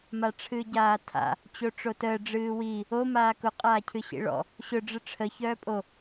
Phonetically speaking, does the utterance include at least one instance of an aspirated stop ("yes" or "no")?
yes